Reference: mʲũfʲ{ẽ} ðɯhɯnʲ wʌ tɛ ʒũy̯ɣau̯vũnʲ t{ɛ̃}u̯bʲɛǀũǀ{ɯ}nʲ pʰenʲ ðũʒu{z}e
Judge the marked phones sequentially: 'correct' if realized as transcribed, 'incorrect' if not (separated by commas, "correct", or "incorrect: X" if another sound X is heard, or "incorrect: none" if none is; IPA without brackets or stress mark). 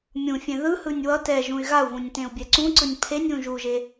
correct, incorrect: ẽ, correct, incorrect: ʒ